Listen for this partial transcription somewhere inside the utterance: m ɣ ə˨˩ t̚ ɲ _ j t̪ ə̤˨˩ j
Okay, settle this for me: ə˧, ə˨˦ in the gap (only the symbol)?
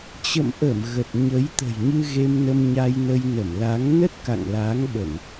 ə˨˦